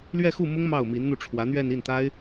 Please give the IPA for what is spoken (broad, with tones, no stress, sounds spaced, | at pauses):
l ɥ ɛ˥˧ x u˥˩ m ʊ˥ ŋ m ɑ˥˩ ʊ̯ m i˧˥ n n̪ u˥˩ ʈ͡ʂʰ w ä˧˥ n̪ ɥ ɛ˥˧ n i˥˩ n t̪ a˥ ɪ̯